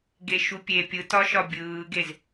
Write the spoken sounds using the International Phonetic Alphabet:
ɡ e ʃ u pʲ e pʲ ɯ t ɒ ʃ ɒ bʲ ɯː ɡ e z

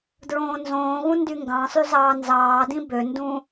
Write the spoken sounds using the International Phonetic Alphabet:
d ɹ õː n z õː ɣ ũ n d y ŋ ɡ ɑ̃ sˤ y z ɑː n z ɑː d ĩ b ø n d ũ

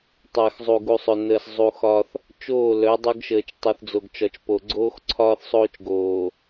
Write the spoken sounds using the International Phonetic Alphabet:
tˤ əː˨ x zˤ u˨ ɡ u˨ sˤ ɵ˨ n əː˨ s zˤ u˨ x ɒ˦ θ | t͡ʃ oː˦˨ l œ˨˦ dˤ ɵ˦ ɡ ʃ əː˨ t͡ʃ tˤ u˨ θ d͡z o˨ ɡ t͡ʃ ɒ˨ t͡ʃ p o˨ ɡ͡ǀ oː˦ x ǀʰ ɒː˦ θ sˤ oː˦ t͡ʃ ɡ oː˨

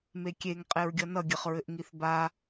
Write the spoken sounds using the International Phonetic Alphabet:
m e kʲ e ŋ qʼ e ɹ ɡʲ ʌ n ʌ ɡʲ ɘ χ ɹ ɘ ʔ ŋ i θ b a

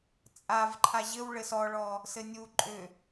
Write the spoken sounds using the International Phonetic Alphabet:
t͡sʼ a v ǃʰ a ʑ ɘ w ɭ ɘ s ɔ ɭ ɔ | s ɘ nʲ u ǃʼ ʏ

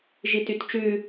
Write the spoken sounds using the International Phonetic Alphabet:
ʒ i t y t t͡ʃ ʉ

